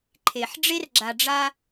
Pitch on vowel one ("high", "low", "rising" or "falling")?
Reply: low